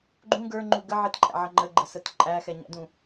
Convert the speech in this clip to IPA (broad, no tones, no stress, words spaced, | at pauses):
ɡ͡ǃũ ɡə˞ŋ͡ǃu ɡə ʕɪtǃʼæ̰ʕʌ ŋ͡ǃəɡ͡ǃəsət ǃʼæxɛɲæ̰dũ